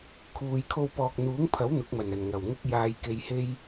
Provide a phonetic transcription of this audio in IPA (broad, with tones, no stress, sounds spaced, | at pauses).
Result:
kʰ uː˨ j kʰ o˧ w p ɔː˨ k̚ n̪ uː˨˥ ŋ pʰ ɐ˨˥ w n̪ ʊ˨˥ k̚ m ɐ˨˩ n ɐ˨˩ n ŋ ɐ˨˩ w ŋ ʊ˥ k̚ j aː˧ j k e˧ j h e˥ j